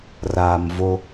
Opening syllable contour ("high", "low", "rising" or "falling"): low